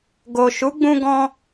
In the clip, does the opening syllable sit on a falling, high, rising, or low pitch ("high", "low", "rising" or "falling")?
low